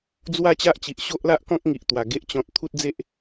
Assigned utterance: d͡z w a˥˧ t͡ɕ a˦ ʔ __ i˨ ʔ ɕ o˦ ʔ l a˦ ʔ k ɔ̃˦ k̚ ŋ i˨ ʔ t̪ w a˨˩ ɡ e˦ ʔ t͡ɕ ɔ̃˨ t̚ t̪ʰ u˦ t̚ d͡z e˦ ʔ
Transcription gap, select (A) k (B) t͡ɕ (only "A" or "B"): B